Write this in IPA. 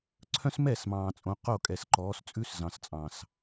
ǀʰ œ̃˦ s m ɛ˦˨ s m ɑ̃ː˨ t͡sʼ õ˨ q o˦˨ kʼ ɛ˨ s ǃ ɔː˨˦ s t͡sʼ ʉ˦ s z ɑ̃˨ s t͡sʼ ɑ̃˨ s

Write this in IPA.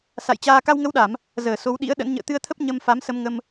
s a̰˧˨ j t͡ɕ aː˧ k a˧ w ŋ ə˨˦ w ɗ a˧˩˨ m | z əː˧˩ s o˨˦ w ɗ ḭ˧˥ ə̯ ɗ ə̰˧˥ n ɲ ə̰ː˧˨ t̪ ɨ˧ ə̯ t̪ʰ ə˦˥ p̚ ɲ ə˧ m f a˨˦ m s ə˧ m ŋ ə˧ m

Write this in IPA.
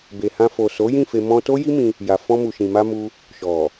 b e˨ h ã˧ f o˨ s o˨˦ j ĩ˦˨ f e˧ m ɔ̃˧ t o˦ j i˦ m ĩ˧ | j a˨ f ɔ̃˧ m u˨ ʃ ĩ˨ m a˧ m u˧ | ʃ ɔ˨

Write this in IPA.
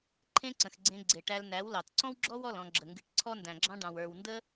ǃʰ ẽ˦ ǀ ə̃˨ x ɡ͡ǀ ẽ˧ ɡ͡ǀ e˨ ʈ æ˧ l n æ˨˦ w l ɑ˨ t ǀ ɔ̃˦ w ɡ͡ǁ ɔ˦ w ɔ˦˨ l ɔ̃˧ ɡ͡ǁ ə˨ ŋ ɡ ɨ˨ ʈ ǀʰ ɔ˦ n d æ̃˨ ɡ͡ǁ ɑ̃˦ ɖ ɑ̃˨ w ə˞˨ w n d ə˦

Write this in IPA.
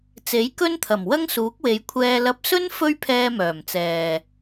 t͡s e˨˥ j k ɵ˥ n t̪ʰ ɐ˨˩ m w ɐ˥ ŋ s uː˨˥ k̚ w e˨˧ j kʷʰ ɛː˧ l ɐ˨˥ p̚ s ɵ˥ n f ɵ˧ ɥ pʰ ɛː˧ m œː˨˩ m t͡s ɛː˨

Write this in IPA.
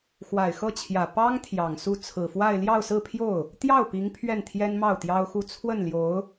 x w a˨˩ ɪ̯ x ɤ˥˩ t͡ɕʰ j ä˨˩ p ɑ˥ ŋ t̪ʰ j ɑ˨˩ ŋ s u˥˩ t͡sʰ ɹ̩˨˩ f w a˥˧ ɪ̯ l j ɑ˥˧ ʊ̯ s ɹ̩˥˧ pʰ j o˥˩ ʊ̯ | t̪ j ɑ˥˩ ʊ̯ p i˧˥ ŋ pʰ ɥ ɛ˥˩ n t̪ʰ j ɛ˥ n m ɑ˥˩ ʊ̯ t̪ j ɑ˥ ʊ̯ x u˥˧ t͡sʰ w ə˥˩ n l j o˧˥ ʊ̯

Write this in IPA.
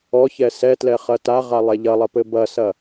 ɔ ç ɛ s ɛ t l ɛ χ ɐ t a ʁ a lˠ ɛ ʎ ɐ lˠ ɐ p ɘ b ɐ s ɐ

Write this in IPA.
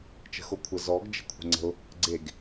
t͡ʃ ə̤ x o kʷʰ ə z ɔ ɡ d͡ʒ ə̤ kʷʰ ə̤ ŋ͡ǀ ə̤ ʊ̯ | ɡ͡ǀ e ɡ

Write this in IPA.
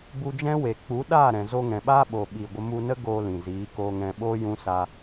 b u˧ d͡ʒ ɛ̃˦ w e˨ k͡p u˨˦ ɗ aː˦˨ ɾ ɛ̃˨ z o˧ ŋ ɛ̃˨ ɓ aː˦ ɓ o˨ ɓ i˨ ɡʷ ə˧ m u˧ n ə˦ ɡ oː˧ l ĩ˨ z iː˨˦ k oː˧ ŋ ɛ̃˧ ɓ oː˦ j ũ˦ s a˧

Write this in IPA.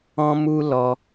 ɔ̃˦ m u˦ l ɔ˧

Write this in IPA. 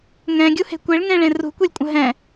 ŋ ɛ̃ ɡʲ u h e̤ kʷ e ɭ ŋ ẽ ɭ ẽ r ṳ kʷ e lʲ kʷʼ ə̃ ɦ ɛ̃

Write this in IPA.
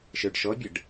ʃ ə˞ ɖ ʃ ɔ bʲ ə ɖ

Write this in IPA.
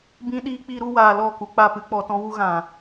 b ĩ˦ ɗ iː˦ k͡p i˦ ɾ u˦ w aː˧ l ɔ˦˨ k u˧ k͡p a˦˨ p ɨ˦ k͡p ɔ˧ t ɔ̃˦ w u˦ ɣ ã˨

